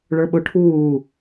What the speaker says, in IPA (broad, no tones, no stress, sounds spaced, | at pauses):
ɭ ə˞ ɓ ʊ ʈʰ uː